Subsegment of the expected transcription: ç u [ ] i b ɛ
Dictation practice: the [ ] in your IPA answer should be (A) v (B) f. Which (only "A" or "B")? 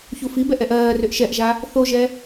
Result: B